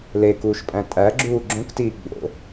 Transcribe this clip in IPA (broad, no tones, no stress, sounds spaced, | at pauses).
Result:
l e k uː ʃ pʼ æ̃ tʼ æ ɡ͡ǁ uː ɡ͡ǁ õ k t iː ɡ͡b o̰